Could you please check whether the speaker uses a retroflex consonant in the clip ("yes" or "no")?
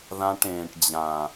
yes